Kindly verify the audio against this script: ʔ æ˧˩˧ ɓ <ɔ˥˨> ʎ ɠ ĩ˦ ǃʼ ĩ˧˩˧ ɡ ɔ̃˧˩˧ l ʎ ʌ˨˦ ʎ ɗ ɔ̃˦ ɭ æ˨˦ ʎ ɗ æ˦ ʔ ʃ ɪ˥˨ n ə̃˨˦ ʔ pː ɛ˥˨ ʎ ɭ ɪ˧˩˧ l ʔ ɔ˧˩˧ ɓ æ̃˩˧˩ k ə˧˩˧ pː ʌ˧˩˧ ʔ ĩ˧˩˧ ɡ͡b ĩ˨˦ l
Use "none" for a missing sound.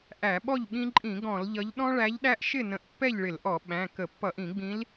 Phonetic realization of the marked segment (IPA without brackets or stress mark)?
ɔ˥˨